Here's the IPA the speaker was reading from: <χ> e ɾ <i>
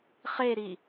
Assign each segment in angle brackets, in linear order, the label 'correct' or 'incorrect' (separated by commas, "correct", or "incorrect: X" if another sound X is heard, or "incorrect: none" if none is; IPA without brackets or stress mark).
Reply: correct, correct